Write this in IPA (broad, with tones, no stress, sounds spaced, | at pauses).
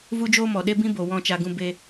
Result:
v u˦ d͡ʒ oː˦ m ɔ˨ ɗ e˦ b ĩ˦ b o˨ w ɔ̃˧ t͡ʃ a˧ ɡ ũ˧ b e˧